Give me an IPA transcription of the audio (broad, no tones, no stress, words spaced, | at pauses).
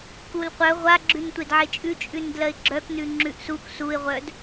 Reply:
kulqʷœ ʁʷa ɡ͡ǁʉntʷedʕet͡ʃʼʉ t͡ʃʼʉndlɜɪ̯ɡ͡ǁœknʉ ŋ͡ǁʉʔsuk suɪ̯ʁʷœd